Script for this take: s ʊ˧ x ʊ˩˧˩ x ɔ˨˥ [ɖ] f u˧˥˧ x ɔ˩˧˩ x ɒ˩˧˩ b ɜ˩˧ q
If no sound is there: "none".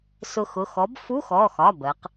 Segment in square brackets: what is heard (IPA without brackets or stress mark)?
b